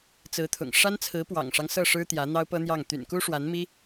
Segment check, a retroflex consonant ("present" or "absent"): present